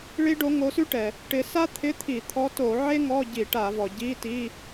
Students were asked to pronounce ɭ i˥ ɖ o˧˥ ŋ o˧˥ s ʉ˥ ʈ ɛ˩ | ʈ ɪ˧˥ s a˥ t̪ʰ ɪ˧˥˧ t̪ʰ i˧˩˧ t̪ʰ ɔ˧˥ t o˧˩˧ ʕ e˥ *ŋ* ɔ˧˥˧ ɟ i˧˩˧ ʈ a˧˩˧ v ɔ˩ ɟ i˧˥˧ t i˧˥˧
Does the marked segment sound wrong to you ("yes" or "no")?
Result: no